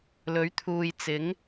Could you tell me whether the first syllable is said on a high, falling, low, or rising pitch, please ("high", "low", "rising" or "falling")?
rising